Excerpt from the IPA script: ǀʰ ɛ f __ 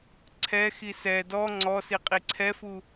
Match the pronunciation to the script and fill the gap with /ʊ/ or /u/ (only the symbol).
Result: u